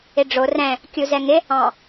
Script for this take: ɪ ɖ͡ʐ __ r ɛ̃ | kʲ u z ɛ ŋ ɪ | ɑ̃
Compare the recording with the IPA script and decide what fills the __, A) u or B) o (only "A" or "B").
B